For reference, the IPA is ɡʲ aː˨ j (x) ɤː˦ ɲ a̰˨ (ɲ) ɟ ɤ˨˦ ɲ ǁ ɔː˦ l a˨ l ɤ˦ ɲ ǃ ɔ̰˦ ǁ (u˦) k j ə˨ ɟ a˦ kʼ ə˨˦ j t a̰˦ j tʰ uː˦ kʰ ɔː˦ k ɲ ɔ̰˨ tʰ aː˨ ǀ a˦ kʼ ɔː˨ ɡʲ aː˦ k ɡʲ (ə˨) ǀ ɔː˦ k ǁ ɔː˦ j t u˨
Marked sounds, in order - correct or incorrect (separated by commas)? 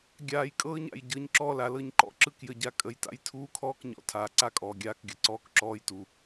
incorrect, incorrect, incorrect, correct